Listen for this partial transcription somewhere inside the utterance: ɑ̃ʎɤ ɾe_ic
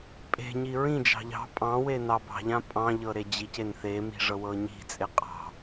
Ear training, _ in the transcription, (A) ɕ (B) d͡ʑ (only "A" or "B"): B